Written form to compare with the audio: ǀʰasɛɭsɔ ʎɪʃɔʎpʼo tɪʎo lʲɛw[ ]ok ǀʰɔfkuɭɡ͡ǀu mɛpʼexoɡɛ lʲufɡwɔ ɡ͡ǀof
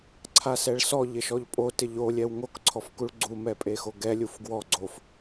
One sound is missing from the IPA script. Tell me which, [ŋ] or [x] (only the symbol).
ŋ